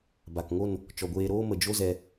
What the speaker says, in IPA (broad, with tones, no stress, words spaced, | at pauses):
ba˨kŋo˦˨n | t͡ʃɔ˨ɡʷeː˧ɾoː˦mə˨ d͡ʒo˦ zɛ˧